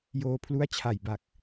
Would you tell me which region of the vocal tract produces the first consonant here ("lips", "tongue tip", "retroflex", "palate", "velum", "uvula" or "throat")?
palate